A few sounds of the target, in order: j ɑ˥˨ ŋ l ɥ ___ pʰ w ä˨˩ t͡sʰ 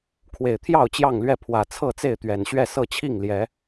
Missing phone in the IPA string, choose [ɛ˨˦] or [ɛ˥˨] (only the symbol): ɛ˥˨